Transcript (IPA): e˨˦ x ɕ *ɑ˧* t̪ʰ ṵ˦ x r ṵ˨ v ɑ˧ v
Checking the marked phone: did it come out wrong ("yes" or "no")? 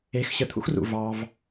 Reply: yes